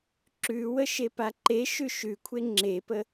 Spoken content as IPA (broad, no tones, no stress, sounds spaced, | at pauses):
ǁ ʉ w ə ʃ e p a ǃ e ʃ ʉ ʃ ʉ kʷʰ e ŋ͡ǁ e p ə